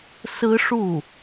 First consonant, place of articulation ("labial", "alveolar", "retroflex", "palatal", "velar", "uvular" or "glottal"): alveolar